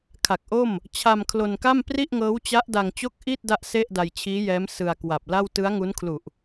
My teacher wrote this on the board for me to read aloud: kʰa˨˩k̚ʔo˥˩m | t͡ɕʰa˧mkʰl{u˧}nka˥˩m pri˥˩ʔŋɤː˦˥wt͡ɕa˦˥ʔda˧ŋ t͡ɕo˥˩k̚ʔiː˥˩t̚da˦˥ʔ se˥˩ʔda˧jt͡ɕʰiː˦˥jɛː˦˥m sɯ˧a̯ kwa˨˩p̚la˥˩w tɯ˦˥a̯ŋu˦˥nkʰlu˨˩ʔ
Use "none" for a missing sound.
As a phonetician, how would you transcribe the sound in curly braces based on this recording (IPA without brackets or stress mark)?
o˧